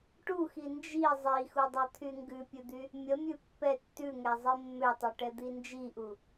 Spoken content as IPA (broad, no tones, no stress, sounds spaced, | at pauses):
ʈ u x i n d͡ʒ i zˤ i x u dˤ i t̪ʰ y ŋ ɡ ʉ pʲ ʉ d̪ y | mʲ ə mʲ ʉ pː ɛ tː ʉ ŋ ɛ zˤ i mː ø tˤ ʉ ʈ ɛ d̪ i n d͡ʒ i ʔ u